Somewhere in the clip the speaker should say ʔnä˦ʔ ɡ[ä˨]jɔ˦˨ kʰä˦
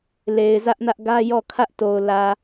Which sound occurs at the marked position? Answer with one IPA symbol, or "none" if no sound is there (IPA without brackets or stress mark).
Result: ä˦